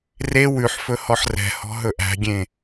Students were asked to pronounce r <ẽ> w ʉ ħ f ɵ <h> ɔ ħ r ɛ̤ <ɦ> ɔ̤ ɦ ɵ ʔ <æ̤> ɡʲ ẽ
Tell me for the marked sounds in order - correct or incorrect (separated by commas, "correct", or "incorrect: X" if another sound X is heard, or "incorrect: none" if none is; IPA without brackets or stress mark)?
incorrect: e, correct, incorrect: h, correct